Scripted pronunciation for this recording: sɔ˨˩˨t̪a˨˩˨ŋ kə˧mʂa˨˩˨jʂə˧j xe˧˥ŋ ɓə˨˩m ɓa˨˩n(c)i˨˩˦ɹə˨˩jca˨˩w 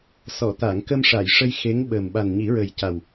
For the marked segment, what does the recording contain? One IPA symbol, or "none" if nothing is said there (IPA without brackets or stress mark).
ɲ